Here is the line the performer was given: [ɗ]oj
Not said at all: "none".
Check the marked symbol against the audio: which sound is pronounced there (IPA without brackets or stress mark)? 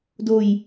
d